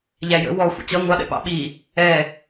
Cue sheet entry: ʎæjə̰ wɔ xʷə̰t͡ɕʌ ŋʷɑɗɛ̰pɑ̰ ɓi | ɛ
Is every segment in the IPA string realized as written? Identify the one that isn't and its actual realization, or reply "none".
none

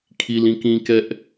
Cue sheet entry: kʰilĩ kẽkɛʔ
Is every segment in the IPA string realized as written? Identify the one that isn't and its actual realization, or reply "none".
ẽ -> ĩ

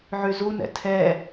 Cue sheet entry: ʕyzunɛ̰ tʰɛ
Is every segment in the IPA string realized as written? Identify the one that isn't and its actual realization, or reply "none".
none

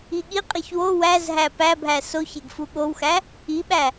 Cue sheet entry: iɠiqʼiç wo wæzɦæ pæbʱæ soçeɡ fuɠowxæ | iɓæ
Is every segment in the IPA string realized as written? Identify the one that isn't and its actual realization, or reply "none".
none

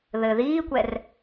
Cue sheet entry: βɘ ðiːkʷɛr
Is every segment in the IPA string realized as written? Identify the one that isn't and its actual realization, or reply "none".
β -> ð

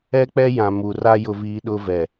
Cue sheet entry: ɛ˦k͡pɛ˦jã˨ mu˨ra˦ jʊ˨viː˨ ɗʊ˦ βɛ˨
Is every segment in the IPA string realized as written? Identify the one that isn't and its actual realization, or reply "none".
β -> v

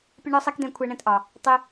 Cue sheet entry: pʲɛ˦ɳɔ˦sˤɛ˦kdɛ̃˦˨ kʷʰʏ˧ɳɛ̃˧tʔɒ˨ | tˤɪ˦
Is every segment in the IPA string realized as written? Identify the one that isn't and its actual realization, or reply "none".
ʏ˧ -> ɛ˧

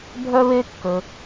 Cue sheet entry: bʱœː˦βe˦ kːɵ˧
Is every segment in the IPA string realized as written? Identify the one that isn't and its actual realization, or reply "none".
œː˦ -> œ˦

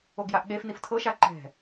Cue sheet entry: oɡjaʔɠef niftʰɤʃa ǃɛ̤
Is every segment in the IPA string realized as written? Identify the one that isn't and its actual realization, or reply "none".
none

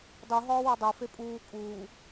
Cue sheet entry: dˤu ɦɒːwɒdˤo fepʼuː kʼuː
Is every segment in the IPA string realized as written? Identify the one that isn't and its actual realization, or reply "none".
none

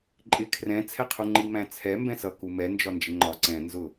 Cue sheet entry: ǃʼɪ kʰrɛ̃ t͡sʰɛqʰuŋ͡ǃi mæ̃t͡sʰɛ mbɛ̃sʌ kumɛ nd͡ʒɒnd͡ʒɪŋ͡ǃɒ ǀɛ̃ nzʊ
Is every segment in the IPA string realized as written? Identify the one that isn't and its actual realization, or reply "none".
none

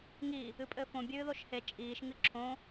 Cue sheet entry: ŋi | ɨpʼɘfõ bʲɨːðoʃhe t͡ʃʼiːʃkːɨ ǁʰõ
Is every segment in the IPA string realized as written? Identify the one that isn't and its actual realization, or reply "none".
kː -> ŋ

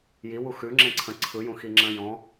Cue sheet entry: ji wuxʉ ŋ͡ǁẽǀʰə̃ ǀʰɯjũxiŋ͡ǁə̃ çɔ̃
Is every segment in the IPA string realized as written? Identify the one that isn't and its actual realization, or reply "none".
ç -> j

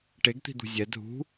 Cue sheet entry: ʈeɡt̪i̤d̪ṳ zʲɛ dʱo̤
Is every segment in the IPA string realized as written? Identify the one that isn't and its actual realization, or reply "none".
o̤ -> ṳ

